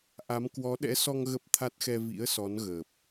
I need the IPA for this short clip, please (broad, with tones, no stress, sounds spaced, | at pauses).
ʔ a˨˦ m k w ɔ˨˦ ɗ ɛ̰˧˥ s ɔ˧ ŋ ɣ ə˦˥ p̚ t̪ʰ a˦˥ t̚ x ɛ˧ v ḭ˧˥ ə̯ s ɔ˨˦ n ɣ əː˨˩ p̚